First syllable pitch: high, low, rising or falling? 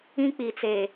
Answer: high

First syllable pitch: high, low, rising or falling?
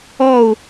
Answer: falling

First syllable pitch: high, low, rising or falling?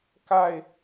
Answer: falling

